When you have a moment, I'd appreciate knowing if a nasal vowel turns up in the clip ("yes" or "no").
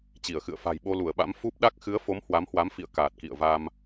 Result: no